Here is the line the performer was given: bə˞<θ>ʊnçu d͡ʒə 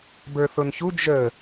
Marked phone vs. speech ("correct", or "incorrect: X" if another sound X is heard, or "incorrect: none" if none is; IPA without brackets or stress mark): correct